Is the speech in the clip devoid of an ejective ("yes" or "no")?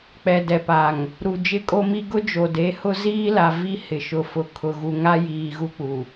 no